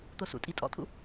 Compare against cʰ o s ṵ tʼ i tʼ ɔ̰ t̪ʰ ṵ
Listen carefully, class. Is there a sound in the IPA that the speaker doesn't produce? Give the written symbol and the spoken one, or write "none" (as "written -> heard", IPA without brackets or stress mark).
cʰ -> t̪